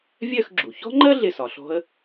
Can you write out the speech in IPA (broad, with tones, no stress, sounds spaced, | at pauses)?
vʲ ɜ˦˨ x ɡ͡ǁ u˩ ç ɔ̤˥ ŋ͡ǃ ɜ˥ ɮ ɪ˦˨ s ɒ˩ ɬ ɔ̤˥ ə̯